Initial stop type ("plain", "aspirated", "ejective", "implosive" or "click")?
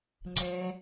click